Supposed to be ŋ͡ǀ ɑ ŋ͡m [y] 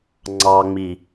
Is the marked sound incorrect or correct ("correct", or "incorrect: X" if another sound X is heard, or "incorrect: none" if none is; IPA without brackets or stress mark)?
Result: incorrect: i